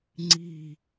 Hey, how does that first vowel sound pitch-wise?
falling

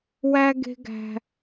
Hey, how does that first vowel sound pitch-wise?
high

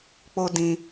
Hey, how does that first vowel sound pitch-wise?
high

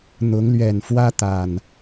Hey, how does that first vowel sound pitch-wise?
rising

